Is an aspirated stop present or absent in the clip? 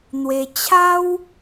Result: present